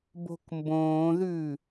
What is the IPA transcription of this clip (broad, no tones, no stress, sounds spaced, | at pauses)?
b o̤ k m b õː ð ʉ